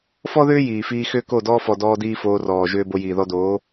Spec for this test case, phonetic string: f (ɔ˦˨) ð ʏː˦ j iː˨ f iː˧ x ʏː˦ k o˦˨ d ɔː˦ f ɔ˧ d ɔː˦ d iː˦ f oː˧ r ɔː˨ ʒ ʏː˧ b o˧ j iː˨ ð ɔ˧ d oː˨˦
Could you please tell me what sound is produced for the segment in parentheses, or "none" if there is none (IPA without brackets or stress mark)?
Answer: ɔ˦